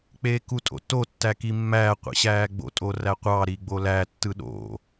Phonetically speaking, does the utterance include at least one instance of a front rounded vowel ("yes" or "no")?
no